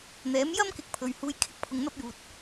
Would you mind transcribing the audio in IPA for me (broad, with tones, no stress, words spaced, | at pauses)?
n̪ɛː˨˥m jɐ˥mkɪ˨˥k̚ pʰɵ˨ɥhuː˧j kʰɪ˥k̚pʰʊ˧ŋn̪ɐ˥p̚juː˨t̚